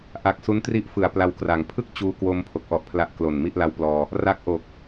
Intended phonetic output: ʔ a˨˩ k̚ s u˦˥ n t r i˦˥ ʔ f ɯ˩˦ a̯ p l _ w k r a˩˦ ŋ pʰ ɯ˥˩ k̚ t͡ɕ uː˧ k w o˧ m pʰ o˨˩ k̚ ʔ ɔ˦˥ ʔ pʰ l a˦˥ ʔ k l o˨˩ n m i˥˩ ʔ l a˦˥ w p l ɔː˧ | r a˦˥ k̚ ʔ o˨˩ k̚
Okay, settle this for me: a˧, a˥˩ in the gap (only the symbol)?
a˧